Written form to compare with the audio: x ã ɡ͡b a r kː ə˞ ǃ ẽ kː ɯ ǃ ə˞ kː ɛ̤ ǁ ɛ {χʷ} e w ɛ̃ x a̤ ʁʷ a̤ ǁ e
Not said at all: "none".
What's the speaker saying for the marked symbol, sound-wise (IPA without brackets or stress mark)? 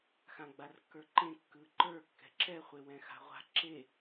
χʷ